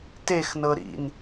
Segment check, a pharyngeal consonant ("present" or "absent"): absent